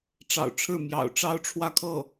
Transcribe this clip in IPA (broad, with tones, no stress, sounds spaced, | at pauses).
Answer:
ʈ͡ʂ ɑ̰˨˩ ʊ̯ ʈ͡ʂʰ ɻ̩˥˩ m j ɑ̰˨˩ ʊ̯ ʈ͡ʂ ɑ˥ ʊ̯ ʈ͡ʂʰ w ä˥˧ kʰ ɤ˥˩